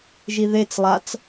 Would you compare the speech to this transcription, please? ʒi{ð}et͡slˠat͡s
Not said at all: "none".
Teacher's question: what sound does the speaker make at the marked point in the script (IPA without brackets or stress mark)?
ð